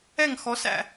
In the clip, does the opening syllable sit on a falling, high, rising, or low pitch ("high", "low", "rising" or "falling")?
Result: falling